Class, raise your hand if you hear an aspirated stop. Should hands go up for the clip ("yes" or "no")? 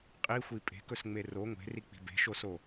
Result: no